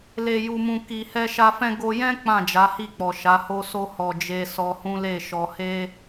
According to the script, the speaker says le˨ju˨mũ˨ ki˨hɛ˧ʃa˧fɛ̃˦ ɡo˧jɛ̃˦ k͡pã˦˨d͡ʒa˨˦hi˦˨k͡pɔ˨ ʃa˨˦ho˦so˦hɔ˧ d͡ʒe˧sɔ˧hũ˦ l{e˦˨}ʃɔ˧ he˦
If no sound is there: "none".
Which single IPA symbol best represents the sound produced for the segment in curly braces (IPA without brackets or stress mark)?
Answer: e˦˨